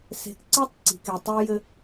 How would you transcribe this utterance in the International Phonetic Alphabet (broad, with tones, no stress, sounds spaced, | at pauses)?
s e̤˧ k ǀ a˦ tˤ ǀ i̤˨ k e˨ tˤ ʏː˧ j ɘ˧